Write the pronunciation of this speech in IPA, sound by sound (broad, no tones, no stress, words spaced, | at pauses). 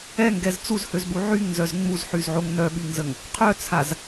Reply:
ɛŋɡɛz t͡suzhøzɓu ʕyŋnzœz ŋ͡muzħyzʕoŋ nœɓyŋzəŋ | qʰœt͡sʰaz